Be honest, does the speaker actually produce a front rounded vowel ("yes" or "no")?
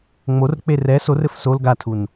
no